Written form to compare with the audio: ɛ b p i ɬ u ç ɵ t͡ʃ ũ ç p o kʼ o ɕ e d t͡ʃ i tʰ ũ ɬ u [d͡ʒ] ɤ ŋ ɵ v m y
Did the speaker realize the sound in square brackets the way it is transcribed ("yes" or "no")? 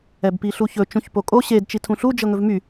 yes